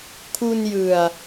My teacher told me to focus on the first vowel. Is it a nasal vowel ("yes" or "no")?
no